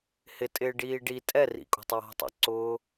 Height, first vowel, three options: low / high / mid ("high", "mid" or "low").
high